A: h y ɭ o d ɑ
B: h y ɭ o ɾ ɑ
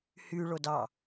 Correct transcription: A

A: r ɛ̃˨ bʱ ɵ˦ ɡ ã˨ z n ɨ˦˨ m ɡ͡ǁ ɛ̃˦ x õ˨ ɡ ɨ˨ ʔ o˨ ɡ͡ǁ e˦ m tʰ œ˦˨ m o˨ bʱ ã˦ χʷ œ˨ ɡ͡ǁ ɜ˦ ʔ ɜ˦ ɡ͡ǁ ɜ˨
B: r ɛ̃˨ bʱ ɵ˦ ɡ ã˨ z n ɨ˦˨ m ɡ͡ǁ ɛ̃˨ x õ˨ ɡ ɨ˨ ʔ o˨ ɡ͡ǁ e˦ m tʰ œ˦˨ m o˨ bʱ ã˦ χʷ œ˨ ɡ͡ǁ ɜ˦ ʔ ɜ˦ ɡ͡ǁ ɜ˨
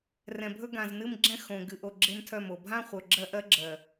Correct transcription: A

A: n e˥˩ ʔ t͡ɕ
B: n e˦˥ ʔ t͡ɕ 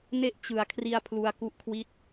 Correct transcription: B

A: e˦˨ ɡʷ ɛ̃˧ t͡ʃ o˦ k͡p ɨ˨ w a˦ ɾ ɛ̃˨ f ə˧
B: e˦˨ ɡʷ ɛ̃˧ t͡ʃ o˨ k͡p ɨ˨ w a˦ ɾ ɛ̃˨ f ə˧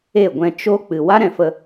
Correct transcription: A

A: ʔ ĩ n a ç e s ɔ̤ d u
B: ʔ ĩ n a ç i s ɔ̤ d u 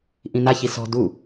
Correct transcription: B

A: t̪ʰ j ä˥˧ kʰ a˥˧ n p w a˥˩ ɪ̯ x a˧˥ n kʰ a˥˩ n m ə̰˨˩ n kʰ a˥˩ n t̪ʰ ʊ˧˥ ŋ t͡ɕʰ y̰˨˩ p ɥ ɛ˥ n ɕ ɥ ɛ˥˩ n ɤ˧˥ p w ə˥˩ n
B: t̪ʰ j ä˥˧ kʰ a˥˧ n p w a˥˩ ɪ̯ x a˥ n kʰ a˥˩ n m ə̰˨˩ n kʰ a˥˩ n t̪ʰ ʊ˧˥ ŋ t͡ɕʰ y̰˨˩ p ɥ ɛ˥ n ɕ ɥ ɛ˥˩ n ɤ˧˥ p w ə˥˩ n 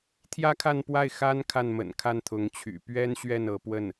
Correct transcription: B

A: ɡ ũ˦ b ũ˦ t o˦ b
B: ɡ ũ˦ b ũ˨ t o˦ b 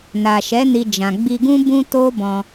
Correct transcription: A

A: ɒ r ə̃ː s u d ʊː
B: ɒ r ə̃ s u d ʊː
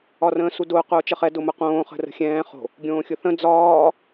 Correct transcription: A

